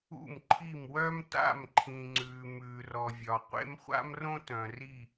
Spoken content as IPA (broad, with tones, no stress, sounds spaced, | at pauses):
ṵ˦˨ m ǃʰ i˦˨ m w œ˥ m t a̰˦˨ m ǃʰ ĩ˨ ŋ͡ǀ ʉː˨ m ʉː˨ r ɔ˨ vʲ ɒ˨ qʷ ḛ˥ m χʷ a̰˥ m r õ˥ t œ̃˨ r i˦˨